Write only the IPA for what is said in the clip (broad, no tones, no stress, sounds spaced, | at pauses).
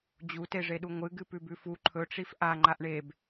d͡ʑ u t e ʐ e ɗ u ŋʷ ɨ ɡ ɨ p ʉ b ʉ f u ǃʰ ɵ ʈ͡ʂ i f ʔ a ŋ͡ǃ a ʔ ɳ e b